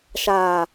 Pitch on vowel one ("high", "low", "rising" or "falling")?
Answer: low